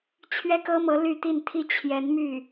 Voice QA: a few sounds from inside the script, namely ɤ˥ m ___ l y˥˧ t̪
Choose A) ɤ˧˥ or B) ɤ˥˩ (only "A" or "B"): A